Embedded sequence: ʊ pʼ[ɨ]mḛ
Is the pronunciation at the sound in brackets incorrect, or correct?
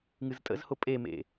incorrect